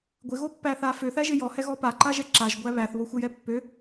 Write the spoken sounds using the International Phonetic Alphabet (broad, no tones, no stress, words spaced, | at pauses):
ɡʷɪɣopːæθa føθæʒɪ jɔhɛɣɔ paǃaʒɛ ǁaʒɡʷæ βæθβoxʷɪjɛ pːø